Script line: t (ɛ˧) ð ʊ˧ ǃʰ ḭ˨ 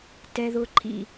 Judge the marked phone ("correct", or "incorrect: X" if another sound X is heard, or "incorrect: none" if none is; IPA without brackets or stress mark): correct